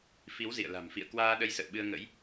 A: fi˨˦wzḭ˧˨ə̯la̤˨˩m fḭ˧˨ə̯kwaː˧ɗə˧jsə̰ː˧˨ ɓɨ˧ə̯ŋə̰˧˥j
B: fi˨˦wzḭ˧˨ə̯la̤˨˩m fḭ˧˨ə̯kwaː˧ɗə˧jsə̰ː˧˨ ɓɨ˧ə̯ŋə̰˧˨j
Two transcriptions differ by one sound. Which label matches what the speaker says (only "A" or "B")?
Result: A